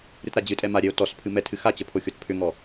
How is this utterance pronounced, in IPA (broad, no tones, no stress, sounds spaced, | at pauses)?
ɾ ɨ t ɾ a d͡ʑ ɨ tʼ ɛ m a ɾʲ ɛ o̯ t ɔ s pʰ ɨ m ɛ tʰ ɨ x a t͡ɕ ə pʰ o xʲ o t pʰ ʏ ŋ ɔ